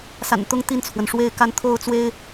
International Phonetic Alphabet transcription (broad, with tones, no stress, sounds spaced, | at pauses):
s a̰˨˩ n t̪ ʊ˦ ŋ t̪ i˥˨ n t͡sʰ w ə˩ n ʂ w e˥˨ ɪ̯ k a˥˨ n t̪ʰ o˥˨ ʊ̯ t͡s w e˦ ɪ̯